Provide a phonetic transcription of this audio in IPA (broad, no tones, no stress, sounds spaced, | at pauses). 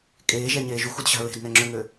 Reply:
kʼ eː ʒ ɛ ɲ eː ʒ u x u d ɕ a̤ ɹ e̤ d n ɛ ŋ͡ǁ ø ŋ ø